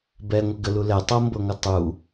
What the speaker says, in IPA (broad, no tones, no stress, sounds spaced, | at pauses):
b ɛ ŋʷ ə ɡ ə l u l ɛ tˤ ɤ m b ɤ ŋʷ ɤ tˤ u